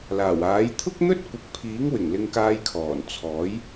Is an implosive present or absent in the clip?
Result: absent